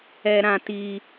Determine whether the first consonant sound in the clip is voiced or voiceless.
voiced